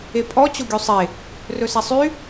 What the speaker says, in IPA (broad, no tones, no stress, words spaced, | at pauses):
epʼɔ t͡ɕoɡʲusˤe | rɵsɛsˤy